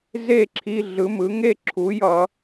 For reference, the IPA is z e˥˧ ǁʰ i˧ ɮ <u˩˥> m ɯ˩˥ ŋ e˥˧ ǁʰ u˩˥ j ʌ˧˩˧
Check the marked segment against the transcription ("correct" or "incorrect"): incorrect